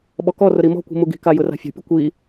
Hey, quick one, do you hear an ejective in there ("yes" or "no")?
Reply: no